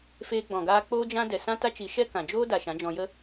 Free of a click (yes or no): yes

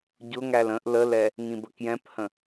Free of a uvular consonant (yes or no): yes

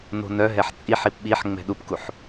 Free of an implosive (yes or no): no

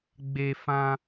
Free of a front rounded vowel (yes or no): yes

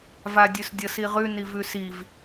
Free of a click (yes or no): yes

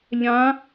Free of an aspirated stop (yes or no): yes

